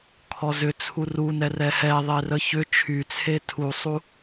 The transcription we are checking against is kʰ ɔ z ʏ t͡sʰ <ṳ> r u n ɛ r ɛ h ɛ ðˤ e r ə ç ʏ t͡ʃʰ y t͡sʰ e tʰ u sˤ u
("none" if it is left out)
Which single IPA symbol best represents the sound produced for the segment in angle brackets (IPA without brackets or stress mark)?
u